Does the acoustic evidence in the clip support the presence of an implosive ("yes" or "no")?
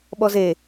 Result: yes